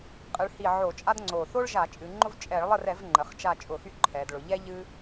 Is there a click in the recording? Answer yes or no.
yes